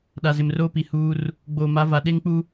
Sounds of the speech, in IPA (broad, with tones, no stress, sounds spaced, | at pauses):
ɗ a˨ z ɪ˨ m r oː˦ p i˨ h uː˦ r | ɡ͡b oː˨ m a˨˦ v a˨ ɗ e˦ ŋ k͡p u˦